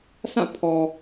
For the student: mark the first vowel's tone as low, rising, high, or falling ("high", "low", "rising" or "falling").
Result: falling